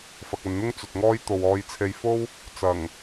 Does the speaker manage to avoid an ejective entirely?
yes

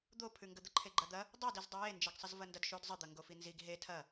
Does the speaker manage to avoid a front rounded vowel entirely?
yes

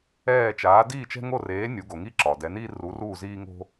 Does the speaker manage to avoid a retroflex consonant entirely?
yes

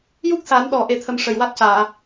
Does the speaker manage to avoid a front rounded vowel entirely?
yes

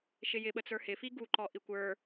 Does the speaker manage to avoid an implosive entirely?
no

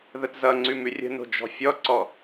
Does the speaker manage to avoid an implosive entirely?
yes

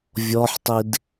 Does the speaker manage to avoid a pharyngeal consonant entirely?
no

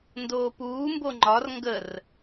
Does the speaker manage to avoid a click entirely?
no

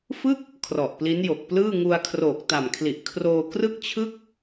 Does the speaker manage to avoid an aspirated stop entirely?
no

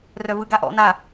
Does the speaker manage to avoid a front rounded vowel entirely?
no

